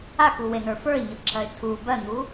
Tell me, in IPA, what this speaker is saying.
akuwenə˞ fə˞ɪ̯ɲɤǁʰɜɪ̯ tʰu bɜn̪u

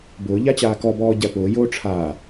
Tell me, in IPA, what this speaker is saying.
bʊː ʎat͡ɕaːkɔbɔː ɟæpʊːjoː ʈ͡ʂʰaː

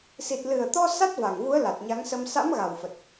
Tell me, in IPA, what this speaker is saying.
si˨˩t̚lɨ˨˩ə̯t̪ɔ˧ sa˦˥t̚va˨˩ŋvu˨˦ə̯ la˨˩t̚ɲa˨˦ŋsə˧m sa̰˧˥mɣa˨˩wfə˨˩t̚

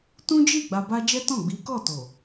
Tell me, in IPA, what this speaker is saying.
tũ˦d͡ʒi˦˨ ɡ͡ba˧ba˦ d͡ʒɛ˦tɔ̃˦˨ ɡ͡bi˨˦kɔ˦˨to˨

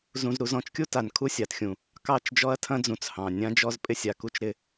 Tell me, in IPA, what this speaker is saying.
zũ˨zɾu˨zɔ̃˨t͡ʃkʲu˦ ta˨n kʰu˦sʲa˨txʲũ˨ | kɑ˦˨t͡ʃd͡ʒɔ˦ɐ̯tʰɐ̃˦d͡zũ˨t͡s hɑ̃˨ nʲã˦d͡ʒɔ˦z pʼɪ˦sʲa˨ku˦t͡ʃ ɾɪ˦

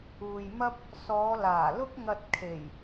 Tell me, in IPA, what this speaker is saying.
uː˨jmɐ˥p̚ | sɔː˨˧laː˨˩lʊ˥k̚ŋɐ˧t̚ kʰe˨˩j

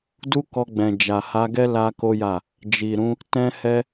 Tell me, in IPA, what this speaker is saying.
du˦kɔ˧ɡ͡bɛ̃˨ d͡ʒa˨ha˧ɡɛ˦ la˦ko˦ja˦˨ | d͡ʒi˨ɾũ˨˦ | tɛ̃˦hɛ˦

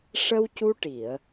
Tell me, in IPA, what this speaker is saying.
ʂə˧wcu˧ʈi˨˩˨ə̯

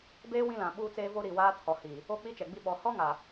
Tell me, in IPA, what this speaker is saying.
beː˦ wĩ˦lã˨ ɓuː˦t͡seː˦vo˦ ɾi˨waː˦tʰɔ˨ hi˨ | o˦ k͡pi˦t͡ʃɛ˨ɡ͡bi˦ɓɔ˨˦ hɔ˦ŋa˨

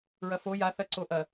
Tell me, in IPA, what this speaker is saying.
ɹɐfo ja θɐǀoʔɐ

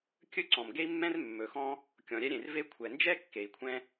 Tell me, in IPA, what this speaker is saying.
kʲɵ˥ǀɔ̃˩m ɡe˥i̯mːɛ̃˥r mːɵ˩xɔ̃˥ | kʲɔ̃˩ ɾʲɛ˥ɾʲẽ˩r ve˥ kʷʰɛ˩nd͡ʒɛ˥ kːe˩i̯kʷʰɛ̃˥

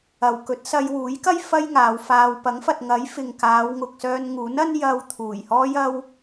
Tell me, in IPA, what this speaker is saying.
ɐ˨w kɵ˨˥t̚sɐ˧jwuː˨˥jkɐ˥j fɐ˥jŋaː˨˧wfaː˧w pɐ˨˥ŋfɐ˨t̚ŋɐ˨˥j fɪ˨ŋkaː˨˧w ŋʊ˨k̚sœː˧nŋuː˨˥nɐ˥n jɐ˧w t̪ʰuː˨˩jhɔː˥jɐ˥w

